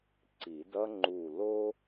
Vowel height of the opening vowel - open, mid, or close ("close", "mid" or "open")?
close